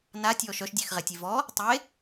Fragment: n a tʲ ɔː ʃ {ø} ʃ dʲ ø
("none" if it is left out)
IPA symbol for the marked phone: œ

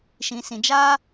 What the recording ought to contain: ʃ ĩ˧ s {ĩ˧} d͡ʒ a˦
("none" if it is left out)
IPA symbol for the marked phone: ĩ˧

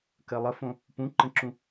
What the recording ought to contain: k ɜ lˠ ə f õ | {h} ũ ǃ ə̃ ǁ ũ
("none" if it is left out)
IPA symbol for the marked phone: p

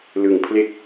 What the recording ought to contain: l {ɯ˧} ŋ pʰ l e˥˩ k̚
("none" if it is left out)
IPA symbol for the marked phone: ɯ˩˦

